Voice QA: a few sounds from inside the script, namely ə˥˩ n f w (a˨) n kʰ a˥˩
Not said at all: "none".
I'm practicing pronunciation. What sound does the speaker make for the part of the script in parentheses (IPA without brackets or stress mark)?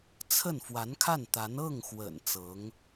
a˧˥